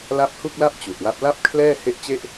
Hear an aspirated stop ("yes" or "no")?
yes